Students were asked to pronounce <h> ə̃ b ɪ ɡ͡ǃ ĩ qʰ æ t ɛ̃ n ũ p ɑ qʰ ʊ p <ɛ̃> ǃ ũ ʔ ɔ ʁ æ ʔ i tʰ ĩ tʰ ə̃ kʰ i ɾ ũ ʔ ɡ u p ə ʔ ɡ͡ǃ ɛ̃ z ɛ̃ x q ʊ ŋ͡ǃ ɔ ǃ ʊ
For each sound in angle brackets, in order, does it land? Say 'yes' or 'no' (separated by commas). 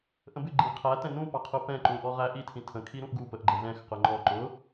no, yes